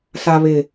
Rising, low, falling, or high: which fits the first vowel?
low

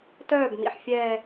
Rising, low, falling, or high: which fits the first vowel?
falling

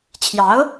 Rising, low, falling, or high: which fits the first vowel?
rising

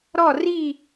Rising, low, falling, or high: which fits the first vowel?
falling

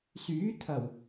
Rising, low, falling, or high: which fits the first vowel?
rising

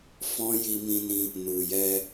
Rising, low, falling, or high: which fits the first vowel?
high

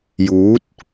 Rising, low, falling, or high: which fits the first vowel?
rising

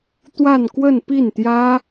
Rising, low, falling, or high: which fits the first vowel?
falling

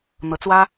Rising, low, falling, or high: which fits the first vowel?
rising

